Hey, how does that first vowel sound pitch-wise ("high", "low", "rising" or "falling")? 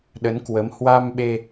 rising